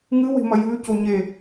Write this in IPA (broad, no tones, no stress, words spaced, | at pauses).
ŋɨwe̤mɐ jʉ coɲe